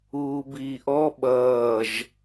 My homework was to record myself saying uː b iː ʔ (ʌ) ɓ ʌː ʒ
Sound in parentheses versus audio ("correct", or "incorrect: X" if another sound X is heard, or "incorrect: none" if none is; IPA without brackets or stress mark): incorrect: ɔ